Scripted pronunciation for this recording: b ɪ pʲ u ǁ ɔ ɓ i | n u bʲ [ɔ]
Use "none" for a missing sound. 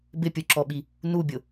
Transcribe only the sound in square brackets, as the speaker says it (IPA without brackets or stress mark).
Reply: ʊ